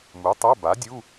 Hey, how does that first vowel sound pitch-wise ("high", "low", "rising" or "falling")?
rising